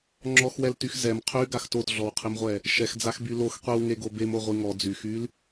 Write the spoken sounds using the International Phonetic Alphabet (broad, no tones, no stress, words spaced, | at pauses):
ŋ͡ǁɔxwɛltyx zɛm qʰyɡax totɮɔwqʰimʁʷɛ | ʃɛxd͡zaxby lox qʷiwŋeɡo bemoʁʷi ŋɔ d͡zyxyl